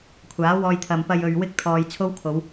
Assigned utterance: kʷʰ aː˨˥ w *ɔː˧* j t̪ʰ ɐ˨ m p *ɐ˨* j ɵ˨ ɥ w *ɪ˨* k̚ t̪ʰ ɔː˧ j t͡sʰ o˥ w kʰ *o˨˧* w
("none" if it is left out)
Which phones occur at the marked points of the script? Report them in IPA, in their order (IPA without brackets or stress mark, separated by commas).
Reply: ɔː˧, ɐ˨, ɪ˧, o˨˧